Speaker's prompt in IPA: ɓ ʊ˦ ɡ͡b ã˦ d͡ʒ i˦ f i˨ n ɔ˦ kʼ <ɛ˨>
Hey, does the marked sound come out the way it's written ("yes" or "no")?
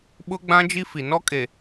no